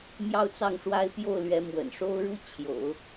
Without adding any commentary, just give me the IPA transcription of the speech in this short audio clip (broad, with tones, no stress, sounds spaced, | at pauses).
m j ɑ˥˧ ʊ̯ t͡s ɑ˥˩ ŋ ʂ w a˥ ɪ̯ p j o˥˩ ʊ̯ l ɥ ɛ˧˥ m w ə̰˨˩ n ʂ o˥ ʊ̯ ɻ u˥ t͡ɕʰ j o̰˨˩˦ ʊ̯